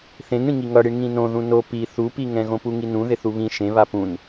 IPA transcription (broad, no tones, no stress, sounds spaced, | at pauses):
θ ẽ ŋ ɽ ĩ ŋ i ŋ ʌ ɽ i ɳ ŋ ĩ n õ ð ũ n o p i θ u p i ŋ ɛ̃ ɣ õ p u ŋ i n ũ ð e θ u β ĩ ʃ ẽ β a p ũ n